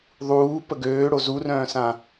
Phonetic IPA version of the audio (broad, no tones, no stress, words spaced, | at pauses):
ðˤuː pəɡøːɽo zurœ̃ːsã